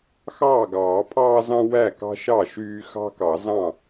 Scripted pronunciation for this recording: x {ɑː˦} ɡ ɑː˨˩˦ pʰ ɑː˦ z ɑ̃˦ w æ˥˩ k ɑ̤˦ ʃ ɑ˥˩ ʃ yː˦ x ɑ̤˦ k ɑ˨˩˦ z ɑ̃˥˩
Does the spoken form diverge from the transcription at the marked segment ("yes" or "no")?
yes